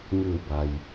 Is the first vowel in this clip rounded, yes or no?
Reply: no